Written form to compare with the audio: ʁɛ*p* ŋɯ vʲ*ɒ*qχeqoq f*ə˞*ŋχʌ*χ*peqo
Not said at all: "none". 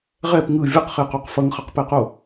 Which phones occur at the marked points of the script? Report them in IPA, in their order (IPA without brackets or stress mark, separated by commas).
p, ʌ, ʌ, q